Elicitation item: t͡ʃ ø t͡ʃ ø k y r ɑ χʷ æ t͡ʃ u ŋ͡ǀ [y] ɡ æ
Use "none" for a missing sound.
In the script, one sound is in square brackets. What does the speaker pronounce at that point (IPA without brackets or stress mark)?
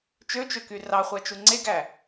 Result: e